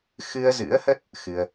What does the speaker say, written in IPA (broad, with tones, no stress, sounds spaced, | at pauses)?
x ɨ˧ ə̯ z ɨ̰˧˥ ə̯ h ə˦˥ t̚ | x ɨ˧ ə̯